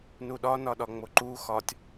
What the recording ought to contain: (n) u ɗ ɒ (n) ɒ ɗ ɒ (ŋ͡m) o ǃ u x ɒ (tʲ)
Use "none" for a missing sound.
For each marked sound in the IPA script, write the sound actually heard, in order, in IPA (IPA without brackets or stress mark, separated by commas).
n, n, ŋ͡m, tʲ